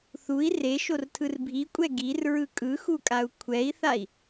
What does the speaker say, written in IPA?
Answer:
θ u i̯ r e ʃ o r tʰ ɯ r bʱ i kʷʼ ɛ ɡ i r ɹ ɯ kʼ ɯ x u kʼ a u̯ kʷʰ ɛ i̯ θ a i̯

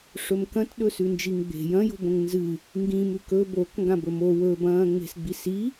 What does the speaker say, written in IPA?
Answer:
ʂ ɵ m k ɐ̃ t ɗ ɵ s ʉ n d͡ʒ i ŋ ɡ͡b e̤ j ɐ̃ j o̤ b õ ŋ n z ɨ | ŋ ɡ ĩ m ʉ k ɵ b o k ŋ ɡ ã b ɵ m o w ɵ b ɐ̃ː ŋ͡m e̤ s ɡ͡b i s i

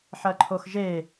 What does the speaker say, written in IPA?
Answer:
ħ ɐ ǃʰ o x ʒ e

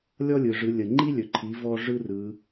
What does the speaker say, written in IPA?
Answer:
lʲ ɔ˥ lʲ ɯ˩ ʐ ɯ˩˧ lʲ ə˩ ŋ͡ǃ i˥ lʲ ɵ˩ ǃʰ i˩˧ v ɔ˧ ʐ ɯ˥ r ɯ˩˧

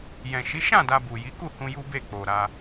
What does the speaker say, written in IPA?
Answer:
j ɛ̃˨ ʃ i˨˦ ʃ ã˦˨ d a˧ b u˨ j i˨˦ k u˦˨ h ũ˧ j u˦ b e˦˨ k͡p o˨ ɾ a˧

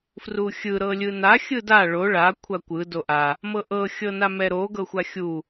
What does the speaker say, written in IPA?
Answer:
f r u xʲ ɯ ɾ ɤ lʲ ɯ n a xʲ ɯ d a ɭ o ɭ a kʷʰ a kʷ ɯ d o ʔ a | m ɤ ʔ ɤ xʲ ɤ n a m ɛ ɾ o ɡ ɤ xʷ a xʲ u

